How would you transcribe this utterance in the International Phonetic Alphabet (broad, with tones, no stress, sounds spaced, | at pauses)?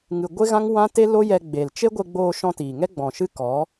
ŋ ɨ˧ ɡʷ e˦ ɣ ã˦ ŋ w ã˦ t e˦ l o˦ j ɛ˧ ɡ͡b e˨ l t͡ʃ e˦ ɡʷ e˧ ɡ͡b oː˧ ʃ ɔ̃˧ t iː˨ ŋ ɛ˦ ɡ͡b ɔ̃˨ ʃ ɨ˦ k ɔ˨˦